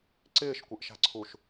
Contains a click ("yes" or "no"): yes